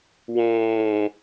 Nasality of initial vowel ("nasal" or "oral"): nasal